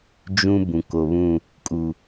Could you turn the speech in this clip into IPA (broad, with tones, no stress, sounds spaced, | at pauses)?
d͡ʒ ũ˦ b ũ˨ k o˨ β ũ˦˨ | kʼ u˨